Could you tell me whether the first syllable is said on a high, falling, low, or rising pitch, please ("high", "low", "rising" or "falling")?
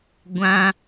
high